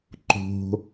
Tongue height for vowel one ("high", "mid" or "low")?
mid